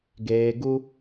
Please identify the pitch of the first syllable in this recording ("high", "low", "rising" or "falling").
low